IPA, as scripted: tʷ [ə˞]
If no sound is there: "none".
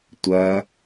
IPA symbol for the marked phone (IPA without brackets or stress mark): ɐ